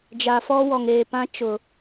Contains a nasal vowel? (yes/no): yes